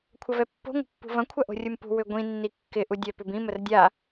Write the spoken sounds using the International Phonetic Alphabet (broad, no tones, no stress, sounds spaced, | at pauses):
kʷʰ ɐ v ɛ pː o̤ ŋʷ ə̤ pː ṳ v ɐ̃ kʷʰ ɐ ʔ o̤ rʲ u m p ṳ w ʏ ɡʷ ĩ nː i kː ɪ ʔ u dʲ œ p ʏ b ĩ m ə r dʲ a